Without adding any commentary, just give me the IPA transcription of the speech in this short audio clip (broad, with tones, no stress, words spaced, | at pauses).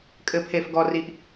kʼɘ˩pʰe˩fɡɔ˩ ri˩ʔ